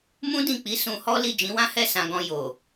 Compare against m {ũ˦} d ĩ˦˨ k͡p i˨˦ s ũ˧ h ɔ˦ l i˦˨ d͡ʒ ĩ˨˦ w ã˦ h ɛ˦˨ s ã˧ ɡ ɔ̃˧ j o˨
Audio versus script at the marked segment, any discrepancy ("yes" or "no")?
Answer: no